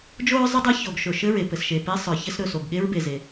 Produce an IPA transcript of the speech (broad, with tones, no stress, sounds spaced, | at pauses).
d͡ʒ o˥ ɹ zˤ ə˥ dˤ ɛ˥ ç o˩ ɡ ʃ ɵ˩ ʃ ɘ˥ ɹ e˩ p ɘ˩ s ʃ e˩ p e˥ sˤ ə˞˩ ç ɘ˥ s ɾ ɵ˩ s o˩ ɡ ɠ e˥ ɹ b e˩ z e˩